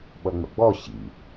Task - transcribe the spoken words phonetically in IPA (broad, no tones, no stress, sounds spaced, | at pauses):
ɓ ʌ ŋ͡m ə̰ ɡ͡b ɔ ɕ ḭ